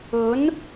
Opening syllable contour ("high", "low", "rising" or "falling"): rising